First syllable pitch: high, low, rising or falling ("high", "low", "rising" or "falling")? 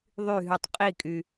falling